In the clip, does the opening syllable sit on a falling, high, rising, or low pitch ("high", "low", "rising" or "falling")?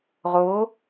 rising